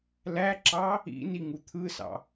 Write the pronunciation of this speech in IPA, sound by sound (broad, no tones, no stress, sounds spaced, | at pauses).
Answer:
l æ ǁ ɑ | ḭ n i ŋ u t̪ʰ ɯ s ɑ̰